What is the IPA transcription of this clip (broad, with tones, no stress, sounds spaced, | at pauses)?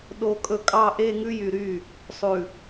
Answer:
ɗ o˨ kʼ ɵ˨ kʼ ɑ˨ ʔ e˨ ŋ ʉ˦ j y˨ ɾ y˦˨ | sˤ ʉ˨